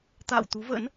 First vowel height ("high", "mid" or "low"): low